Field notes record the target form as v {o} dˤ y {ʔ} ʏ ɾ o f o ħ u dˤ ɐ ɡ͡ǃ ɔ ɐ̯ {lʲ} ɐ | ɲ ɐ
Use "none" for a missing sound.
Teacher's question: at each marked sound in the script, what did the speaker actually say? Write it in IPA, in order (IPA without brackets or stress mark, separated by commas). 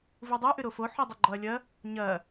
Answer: u, ʔ, lʲ